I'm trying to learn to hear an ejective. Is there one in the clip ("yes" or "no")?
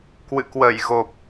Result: no